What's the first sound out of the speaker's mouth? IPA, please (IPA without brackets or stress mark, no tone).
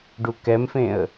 ɖ